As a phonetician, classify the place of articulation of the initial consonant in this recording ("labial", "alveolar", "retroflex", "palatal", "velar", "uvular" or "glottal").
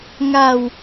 velar